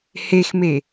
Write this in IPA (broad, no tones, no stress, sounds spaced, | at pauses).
h e x m e